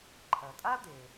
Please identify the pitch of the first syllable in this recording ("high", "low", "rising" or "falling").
low